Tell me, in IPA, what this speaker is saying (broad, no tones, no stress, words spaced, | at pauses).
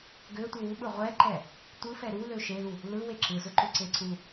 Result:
ɡøtʷɯ wuɓɯ ʁʷɛǃɛ | tʷɯfɛ ɾulø ʃelu | lɯwe ǁɯzʊǃʊǀe ǀu